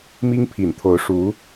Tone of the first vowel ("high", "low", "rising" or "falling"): high